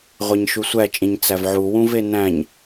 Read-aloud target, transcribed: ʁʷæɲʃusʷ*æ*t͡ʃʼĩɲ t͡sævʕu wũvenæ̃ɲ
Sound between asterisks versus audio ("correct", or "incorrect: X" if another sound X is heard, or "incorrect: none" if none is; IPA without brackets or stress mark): correct